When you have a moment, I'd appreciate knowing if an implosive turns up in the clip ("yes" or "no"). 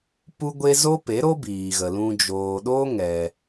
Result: yes